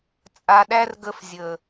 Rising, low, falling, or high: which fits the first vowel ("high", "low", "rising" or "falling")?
low